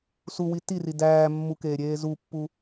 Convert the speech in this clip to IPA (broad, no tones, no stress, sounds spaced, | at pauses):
s u w i t i r i d æː mː u k eː ɾʲ eː z u pː u